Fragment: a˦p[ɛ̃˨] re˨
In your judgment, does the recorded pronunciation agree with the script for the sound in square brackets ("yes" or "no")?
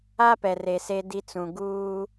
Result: no